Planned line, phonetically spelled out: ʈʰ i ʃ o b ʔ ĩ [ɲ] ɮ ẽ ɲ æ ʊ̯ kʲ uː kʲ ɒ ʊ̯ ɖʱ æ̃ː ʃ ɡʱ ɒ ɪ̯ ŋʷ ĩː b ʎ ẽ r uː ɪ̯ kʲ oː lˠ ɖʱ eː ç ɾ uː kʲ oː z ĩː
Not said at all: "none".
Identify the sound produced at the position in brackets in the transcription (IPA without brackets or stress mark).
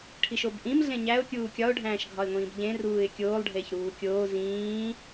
m